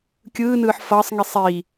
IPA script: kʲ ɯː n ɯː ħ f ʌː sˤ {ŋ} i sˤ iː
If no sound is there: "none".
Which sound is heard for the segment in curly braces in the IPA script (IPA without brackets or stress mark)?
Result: ŋ